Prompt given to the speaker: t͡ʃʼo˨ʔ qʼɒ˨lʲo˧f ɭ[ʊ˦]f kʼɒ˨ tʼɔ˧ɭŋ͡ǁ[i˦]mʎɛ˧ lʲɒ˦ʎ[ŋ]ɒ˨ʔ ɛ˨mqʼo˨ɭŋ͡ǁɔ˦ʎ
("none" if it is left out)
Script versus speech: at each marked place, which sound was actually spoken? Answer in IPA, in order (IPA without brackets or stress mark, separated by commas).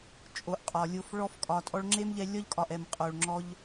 ɔ˦, e˦, kʼ